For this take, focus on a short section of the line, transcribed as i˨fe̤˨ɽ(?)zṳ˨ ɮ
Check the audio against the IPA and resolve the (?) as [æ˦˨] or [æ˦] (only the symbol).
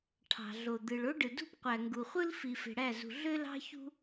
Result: æ˦˨